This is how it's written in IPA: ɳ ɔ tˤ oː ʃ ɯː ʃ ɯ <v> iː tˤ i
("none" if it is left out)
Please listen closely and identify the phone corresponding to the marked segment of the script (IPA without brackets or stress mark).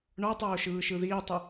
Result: ð